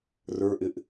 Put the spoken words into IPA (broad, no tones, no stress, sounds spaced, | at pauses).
r ə˞ ʔ ɪ ʔ